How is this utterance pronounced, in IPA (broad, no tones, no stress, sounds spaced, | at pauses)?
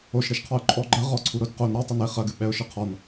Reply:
o ʃ ɾ e ʃ qʰ ɔ ʊ̯ ǃʼ ɔ ɡ͡ǃ ɐ ʁ ɔ ǀʰ u ɾ o d q o n ɾ a tˤ o n e χ ɐ ɡ ɨ ɓ ɛ ʊ̯ ʃ ɨ qʰ ɔ n